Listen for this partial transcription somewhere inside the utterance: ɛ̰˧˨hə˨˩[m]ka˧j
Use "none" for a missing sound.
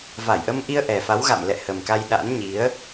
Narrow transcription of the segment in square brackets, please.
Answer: m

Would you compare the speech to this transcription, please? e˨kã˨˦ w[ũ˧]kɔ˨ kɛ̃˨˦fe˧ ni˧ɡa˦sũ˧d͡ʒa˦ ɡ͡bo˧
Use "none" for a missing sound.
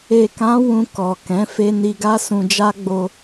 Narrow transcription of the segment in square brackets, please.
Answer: ũ˧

